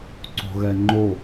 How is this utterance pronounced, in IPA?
ǀ o̤ ɣ ɛ ŋ͡ǃ o

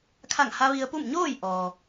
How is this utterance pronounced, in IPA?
kʰ a˧˩ ŋ h a˧ ʋ i˧ ə̯ p u˥˨ m ɲ oː˥˨ j ʔ ɔː˩

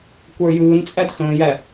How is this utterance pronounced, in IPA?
kʷ ə˞ j ɯː n t͡sʼ æ d x ə̃ː j æ

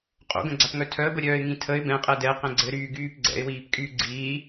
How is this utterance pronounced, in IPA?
qʼ o̰ ɡ ə̃ ɡ͡ǀ a p ŋ œ tʰ œ ə̯ b ə ɾʲ œː ɪ̯ ŋ ĩ tʰ ə ɪ̯ b ɛ̃ qʼ ɛ d ɛ q ɛ̃ ɡ͡ǀ ɘ ɾ yː ɡ yː p ɡ͡ǀ ɛ̰ ɪ̯ w iː p kʼ yː ɡ͡ǀ iː

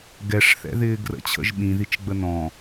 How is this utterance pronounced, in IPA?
ɡ ɛ ʂ θ ɛ̰ ð ɪː ɡ r ə̰ t͡ɕʰ ə̰ ʒ ɓ ĩ ð i t͡ʃ ɡ͡b ə n ɔ̃

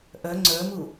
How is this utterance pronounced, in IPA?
ʔ œ ŋ͡ǀ ə˞ m u

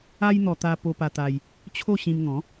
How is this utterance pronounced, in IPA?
a˦ j n̪ ɔ˧ t̪ a˧ p o˧ p a˧ t̪ a˧ j | t͡ɕʰ o˥˧ ɕ ĩ˧ m ŋ ɔ̃˨˦

